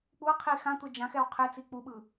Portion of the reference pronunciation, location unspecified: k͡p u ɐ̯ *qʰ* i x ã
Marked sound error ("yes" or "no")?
no